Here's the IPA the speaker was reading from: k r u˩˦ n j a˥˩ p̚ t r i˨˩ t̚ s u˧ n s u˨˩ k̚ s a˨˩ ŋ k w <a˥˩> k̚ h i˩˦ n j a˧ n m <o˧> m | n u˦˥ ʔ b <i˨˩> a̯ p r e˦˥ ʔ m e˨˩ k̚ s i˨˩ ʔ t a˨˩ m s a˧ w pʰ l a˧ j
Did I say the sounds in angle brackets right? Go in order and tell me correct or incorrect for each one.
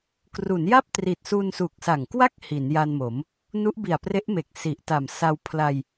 correct, incorrect: o˩˦, correct

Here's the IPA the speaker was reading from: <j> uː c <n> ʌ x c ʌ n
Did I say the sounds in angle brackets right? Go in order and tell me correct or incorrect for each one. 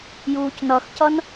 correct, correct

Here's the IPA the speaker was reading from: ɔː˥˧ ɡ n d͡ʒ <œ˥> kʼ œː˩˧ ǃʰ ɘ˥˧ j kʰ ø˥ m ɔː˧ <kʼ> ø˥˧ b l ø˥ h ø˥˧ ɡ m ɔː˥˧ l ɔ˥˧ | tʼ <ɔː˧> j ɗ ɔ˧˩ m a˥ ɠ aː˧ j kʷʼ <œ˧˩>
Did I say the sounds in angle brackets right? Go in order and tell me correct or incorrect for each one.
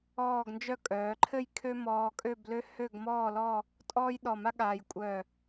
correct, correct, incorrect: ɔː˥, correct

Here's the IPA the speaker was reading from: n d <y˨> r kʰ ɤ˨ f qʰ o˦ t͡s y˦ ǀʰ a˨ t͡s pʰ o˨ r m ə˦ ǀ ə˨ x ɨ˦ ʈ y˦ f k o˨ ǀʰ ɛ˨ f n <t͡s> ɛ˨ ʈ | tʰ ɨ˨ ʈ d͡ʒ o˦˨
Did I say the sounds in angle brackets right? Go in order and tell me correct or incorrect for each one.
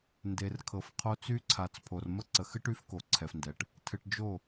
incorrect: e˨, incorrect: d

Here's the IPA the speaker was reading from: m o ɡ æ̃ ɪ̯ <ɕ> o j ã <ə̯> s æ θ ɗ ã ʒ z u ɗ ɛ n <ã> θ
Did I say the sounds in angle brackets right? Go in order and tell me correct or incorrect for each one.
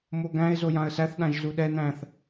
incorrect: z, correct, incorrect: æ̃

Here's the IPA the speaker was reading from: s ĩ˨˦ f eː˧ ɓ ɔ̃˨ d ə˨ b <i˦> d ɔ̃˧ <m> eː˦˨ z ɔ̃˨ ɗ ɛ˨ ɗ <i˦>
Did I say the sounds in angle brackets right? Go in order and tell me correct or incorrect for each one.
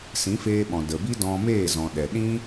correct, correct, incorrect: ĩ˦

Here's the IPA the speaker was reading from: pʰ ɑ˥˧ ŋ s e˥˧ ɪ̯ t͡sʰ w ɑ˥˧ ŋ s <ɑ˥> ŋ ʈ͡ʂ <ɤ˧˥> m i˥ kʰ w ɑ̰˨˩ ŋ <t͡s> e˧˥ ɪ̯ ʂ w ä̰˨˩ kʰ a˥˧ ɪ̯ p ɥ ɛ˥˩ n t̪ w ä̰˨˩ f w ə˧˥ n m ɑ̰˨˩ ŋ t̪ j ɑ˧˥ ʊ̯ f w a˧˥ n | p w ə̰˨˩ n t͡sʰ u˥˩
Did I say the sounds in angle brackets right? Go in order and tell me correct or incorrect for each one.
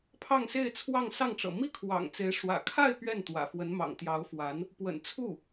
incorrect: ɑ˥˩, incorrect: ɤ̰˨˩, correct

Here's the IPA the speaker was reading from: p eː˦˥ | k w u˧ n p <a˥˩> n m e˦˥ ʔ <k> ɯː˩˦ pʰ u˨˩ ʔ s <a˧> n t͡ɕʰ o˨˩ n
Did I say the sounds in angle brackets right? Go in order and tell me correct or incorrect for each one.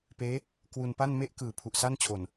correct, correct, incorrect: a˥˩

